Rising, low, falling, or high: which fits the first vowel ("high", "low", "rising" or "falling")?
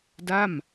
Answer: falling